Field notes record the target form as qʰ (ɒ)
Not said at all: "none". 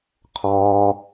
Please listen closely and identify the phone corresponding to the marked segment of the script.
ɒː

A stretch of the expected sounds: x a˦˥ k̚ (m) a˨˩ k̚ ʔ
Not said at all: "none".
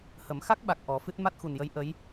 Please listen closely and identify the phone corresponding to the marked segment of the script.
ɓ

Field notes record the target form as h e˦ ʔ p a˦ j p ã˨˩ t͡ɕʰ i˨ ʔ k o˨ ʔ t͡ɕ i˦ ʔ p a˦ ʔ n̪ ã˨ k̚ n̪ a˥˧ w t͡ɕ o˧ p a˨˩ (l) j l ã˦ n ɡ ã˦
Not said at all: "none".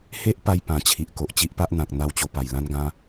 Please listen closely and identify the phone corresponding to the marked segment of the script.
none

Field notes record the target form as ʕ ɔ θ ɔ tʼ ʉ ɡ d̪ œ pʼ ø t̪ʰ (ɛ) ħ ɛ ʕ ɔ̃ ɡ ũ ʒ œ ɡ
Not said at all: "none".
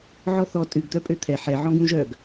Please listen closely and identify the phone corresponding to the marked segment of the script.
ɛ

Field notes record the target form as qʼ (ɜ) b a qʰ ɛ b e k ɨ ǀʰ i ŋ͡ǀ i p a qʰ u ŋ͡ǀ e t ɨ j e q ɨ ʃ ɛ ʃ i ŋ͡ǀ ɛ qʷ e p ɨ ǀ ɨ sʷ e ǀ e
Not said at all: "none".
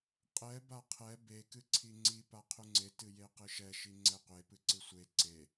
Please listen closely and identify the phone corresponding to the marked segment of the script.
ɛ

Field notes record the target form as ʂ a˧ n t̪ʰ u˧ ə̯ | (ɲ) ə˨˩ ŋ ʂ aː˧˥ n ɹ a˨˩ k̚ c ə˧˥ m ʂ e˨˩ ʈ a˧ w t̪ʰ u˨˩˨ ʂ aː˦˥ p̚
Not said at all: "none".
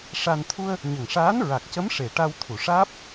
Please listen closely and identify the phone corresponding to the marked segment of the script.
ɲ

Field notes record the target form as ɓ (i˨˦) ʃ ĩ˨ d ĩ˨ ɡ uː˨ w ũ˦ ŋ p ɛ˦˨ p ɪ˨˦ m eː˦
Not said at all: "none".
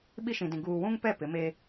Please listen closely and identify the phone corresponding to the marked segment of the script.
i˦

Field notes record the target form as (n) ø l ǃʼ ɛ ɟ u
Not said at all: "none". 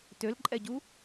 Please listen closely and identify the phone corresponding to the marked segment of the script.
t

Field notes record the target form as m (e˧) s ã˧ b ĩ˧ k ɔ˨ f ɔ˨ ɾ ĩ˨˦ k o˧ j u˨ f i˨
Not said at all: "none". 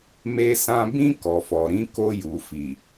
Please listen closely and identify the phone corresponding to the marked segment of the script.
e˧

